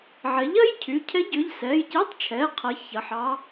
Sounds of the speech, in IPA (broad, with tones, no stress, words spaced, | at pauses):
ʕɛ˩˥ʎɐ˧˥˧jcʰy˩˧˩ cʰɛ˧˥ɟʏ˩˧˩ʎ sɛ˩˧˩jce˧˥˧tˤt͡ʃʰɛ˩˧˩ qʰɐ˩˥ çɐ˩˧˩ħɑ˧˥